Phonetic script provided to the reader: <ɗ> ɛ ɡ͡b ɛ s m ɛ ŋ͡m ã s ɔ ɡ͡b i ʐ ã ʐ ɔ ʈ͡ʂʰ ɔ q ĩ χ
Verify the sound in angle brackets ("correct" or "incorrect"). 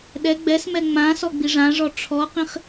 correct